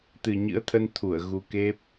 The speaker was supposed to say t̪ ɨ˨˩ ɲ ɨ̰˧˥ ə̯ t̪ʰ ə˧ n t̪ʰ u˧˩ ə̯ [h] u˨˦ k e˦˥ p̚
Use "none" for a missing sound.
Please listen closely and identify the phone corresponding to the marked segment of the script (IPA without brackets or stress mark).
ɣ